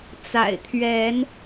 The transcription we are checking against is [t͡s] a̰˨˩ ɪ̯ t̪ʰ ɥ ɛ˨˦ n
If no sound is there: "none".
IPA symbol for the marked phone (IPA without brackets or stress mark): t͡s